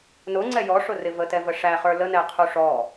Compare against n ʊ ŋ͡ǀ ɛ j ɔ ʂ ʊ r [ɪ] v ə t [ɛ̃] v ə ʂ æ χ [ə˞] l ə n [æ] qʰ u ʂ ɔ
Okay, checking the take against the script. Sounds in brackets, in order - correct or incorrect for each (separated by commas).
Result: correct, incorrect, correct, incorrect